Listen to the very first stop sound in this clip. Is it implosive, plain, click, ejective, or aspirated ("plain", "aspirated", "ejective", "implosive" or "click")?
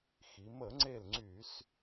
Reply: click